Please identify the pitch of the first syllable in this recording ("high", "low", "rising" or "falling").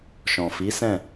low